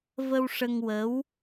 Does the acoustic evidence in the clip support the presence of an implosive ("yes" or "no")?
no